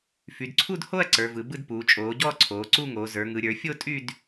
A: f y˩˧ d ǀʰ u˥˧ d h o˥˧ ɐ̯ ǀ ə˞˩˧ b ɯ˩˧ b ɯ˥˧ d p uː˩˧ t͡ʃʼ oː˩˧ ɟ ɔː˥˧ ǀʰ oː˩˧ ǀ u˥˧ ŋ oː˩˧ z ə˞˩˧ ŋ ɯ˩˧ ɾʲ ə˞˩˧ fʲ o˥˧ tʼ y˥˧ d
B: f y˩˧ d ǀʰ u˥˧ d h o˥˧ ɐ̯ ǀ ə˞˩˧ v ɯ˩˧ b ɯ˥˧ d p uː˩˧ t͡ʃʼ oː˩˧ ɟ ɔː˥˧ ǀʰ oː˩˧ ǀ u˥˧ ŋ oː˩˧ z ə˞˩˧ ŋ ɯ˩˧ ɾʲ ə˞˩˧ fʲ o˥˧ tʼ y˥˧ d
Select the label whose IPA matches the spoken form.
B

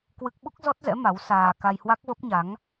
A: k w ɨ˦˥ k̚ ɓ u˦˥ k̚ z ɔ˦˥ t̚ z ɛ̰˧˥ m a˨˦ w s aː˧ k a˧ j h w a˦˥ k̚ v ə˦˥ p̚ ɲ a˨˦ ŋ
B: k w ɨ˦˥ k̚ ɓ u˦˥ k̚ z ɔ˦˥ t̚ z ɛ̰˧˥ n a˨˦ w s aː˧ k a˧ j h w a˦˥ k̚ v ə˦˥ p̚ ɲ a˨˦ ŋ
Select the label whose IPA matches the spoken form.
A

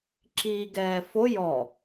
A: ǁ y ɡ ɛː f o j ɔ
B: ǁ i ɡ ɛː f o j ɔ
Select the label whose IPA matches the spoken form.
B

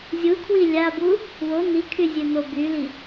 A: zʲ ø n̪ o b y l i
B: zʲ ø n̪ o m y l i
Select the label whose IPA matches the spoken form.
A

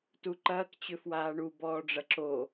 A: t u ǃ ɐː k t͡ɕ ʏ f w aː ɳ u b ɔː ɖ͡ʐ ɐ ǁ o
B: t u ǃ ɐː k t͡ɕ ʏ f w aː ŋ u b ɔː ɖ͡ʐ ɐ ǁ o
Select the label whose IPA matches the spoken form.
A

